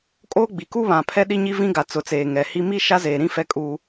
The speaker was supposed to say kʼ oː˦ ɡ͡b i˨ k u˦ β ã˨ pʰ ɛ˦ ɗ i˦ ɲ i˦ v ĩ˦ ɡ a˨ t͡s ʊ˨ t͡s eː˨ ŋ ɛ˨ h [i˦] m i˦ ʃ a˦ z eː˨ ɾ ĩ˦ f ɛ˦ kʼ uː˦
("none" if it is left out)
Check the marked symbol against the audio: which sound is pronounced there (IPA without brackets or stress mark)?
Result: i˦